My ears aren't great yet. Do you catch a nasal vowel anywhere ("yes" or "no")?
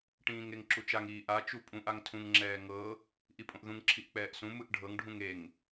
yes